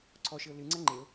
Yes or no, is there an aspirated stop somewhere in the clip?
yes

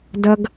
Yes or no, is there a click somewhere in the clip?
no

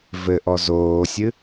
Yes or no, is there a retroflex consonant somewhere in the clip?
no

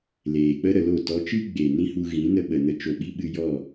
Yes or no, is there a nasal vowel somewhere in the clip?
yes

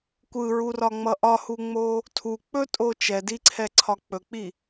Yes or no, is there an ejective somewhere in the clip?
yes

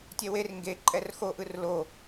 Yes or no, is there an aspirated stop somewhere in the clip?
no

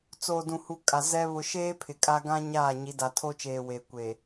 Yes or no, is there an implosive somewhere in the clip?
no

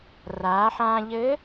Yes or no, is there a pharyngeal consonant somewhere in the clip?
yes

